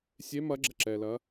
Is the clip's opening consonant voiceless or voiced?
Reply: voiceless